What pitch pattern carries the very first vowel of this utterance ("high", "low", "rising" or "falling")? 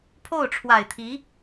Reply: falling